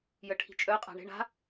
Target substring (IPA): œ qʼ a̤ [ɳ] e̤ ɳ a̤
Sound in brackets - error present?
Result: no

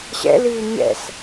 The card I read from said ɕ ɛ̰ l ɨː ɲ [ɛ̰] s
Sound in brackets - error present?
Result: no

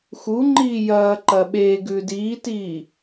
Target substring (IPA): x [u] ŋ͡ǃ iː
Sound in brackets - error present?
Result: no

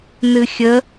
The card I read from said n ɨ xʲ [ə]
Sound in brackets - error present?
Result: no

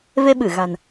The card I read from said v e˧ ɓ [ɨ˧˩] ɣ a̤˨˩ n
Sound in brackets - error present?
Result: no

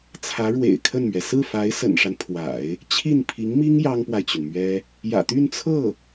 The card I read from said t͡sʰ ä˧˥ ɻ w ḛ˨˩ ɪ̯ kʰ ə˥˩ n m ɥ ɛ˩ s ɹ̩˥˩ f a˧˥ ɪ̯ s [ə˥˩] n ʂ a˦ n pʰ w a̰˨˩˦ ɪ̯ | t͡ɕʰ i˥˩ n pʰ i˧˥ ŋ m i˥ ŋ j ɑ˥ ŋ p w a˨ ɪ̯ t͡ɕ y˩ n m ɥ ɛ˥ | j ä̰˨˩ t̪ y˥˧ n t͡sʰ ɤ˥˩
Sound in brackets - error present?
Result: yes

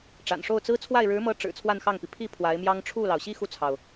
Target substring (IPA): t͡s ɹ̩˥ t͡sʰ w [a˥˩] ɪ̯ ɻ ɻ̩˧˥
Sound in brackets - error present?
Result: no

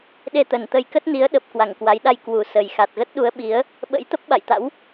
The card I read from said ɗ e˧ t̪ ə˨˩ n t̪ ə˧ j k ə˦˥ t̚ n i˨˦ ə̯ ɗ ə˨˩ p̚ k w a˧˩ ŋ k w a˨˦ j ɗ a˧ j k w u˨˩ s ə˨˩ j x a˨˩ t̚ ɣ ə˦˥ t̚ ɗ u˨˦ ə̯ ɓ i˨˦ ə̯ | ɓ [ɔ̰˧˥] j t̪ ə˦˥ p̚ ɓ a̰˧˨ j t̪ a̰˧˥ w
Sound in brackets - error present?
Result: yes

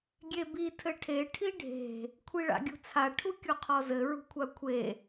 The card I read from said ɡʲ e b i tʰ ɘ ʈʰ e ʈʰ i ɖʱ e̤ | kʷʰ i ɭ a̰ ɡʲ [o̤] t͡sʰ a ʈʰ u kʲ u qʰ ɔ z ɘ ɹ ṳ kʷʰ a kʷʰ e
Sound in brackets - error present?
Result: yes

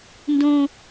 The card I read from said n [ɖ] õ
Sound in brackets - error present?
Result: yes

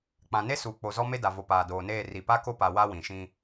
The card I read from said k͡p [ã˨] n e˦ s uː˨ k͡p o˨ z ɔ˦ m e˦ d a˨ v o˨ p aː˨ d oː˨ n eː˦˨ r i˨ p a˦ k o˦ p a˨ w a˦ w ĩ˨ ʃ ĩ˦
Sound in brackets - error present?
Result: no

